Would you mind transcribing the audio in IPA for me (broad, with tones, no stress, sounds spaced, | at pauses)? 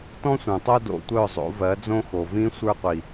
t ɔ̃˦ sʷ œ̃˨ tˤ o˦ d o̰˨ tʷ œ˦˨ zˤ o̰˨˦ v ɜ˨˦ d͡z õ˦ x o˨ v ĩ˦ sʷ ə˞˦ qʷ i˨